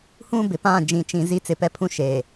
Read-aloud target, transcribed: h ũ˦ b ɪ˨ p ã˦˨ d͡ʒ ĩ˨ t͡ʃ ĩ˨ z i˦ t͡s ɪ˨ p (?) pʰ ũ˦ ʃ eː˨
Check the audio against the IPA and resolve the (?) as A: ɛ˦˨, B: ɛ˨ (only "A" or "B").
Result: A